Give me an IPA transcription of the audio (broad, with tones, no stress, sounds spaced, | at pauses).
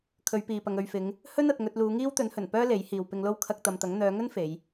kʰ ɵ˨˧ ɥ p iː˨ p ɐ˨ ŋ ɵ˨ ɥ f ɪ˨˧ ŋ | h ɵ˥ n ɐ˨ t̚ ŋ ɵ˧ t̚ l uː˨˧ ŋ iː˥ w t̪ ɵ˨˥ n h ɵ˨˩ n p œː˥ l e˨˥ j h iː˨ w p ɪ˧ ŋ l o˥ w kʰ ɐ˧ k̚ t̪ ɐ˨ m t̪ ɐ˨˥ ŋ n̪ œː˨˧ ŋ ɵ˥ n f e˨˧ j